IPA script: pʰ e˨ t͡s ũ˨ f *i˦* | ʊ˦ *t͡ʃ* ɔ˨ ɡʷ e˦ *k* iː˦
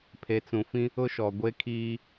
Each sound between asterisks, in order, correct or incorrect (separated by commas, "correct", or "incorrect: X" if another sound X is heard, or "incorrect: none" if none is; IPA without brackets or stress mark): incorrect: ĩ˦, incorrect: ʃ, incorrect: kʰ